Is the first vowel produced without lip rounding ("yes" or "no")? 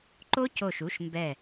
no